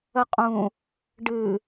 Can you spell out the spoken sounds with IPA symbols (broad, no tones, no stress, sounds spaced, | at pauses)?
ə qʼ ũ | ɖ ɨ